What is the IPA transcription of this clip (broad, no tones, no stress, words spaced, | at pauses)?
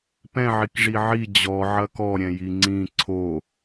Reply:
pɛ̃ʕikʐi ʕi d͡ʑɔ ʕɐkɔɾʲɛ̃ jiŋ͡ǀĩ ǀʰo